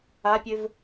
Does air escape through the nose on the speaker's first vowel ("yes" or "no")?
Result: no